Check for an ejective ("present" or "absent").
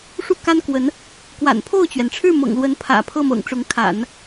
absent